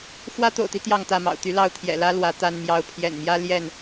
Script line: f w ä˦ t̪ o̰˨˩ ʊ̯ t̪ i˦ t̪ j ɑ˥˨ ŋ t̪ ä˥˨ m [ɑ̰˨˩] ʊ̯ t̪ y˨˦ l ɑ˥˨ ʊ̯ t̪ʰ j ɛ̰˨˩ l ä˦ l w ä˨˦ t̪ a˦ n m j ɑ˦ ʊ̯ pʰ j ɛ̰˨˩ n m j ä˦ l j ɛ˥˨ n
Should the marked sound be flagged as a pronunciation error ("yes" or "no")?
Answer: no